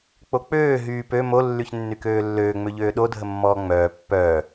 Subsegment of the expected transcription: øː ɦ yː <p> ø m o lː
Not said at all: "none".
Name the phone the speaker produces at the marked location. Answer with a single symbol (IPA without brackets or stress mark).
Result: p